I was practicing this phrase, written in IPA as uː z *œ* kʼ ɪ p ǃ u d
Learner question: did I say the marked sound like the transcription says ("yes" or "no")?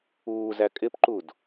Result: no